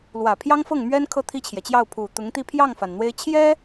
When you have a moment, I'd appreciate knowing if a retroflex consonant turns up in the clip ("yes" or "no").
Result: no